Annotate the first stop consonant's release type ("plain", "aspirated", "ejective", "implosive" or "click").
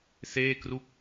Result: plain